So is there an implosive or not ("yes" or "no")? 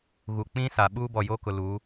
yes